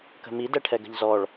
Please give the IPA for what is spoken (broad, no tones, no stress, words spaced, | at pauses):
kə̤mi dɛʈʰɛɡə̤ʎzɔɭ